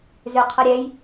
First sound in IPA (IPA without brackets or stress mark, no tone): z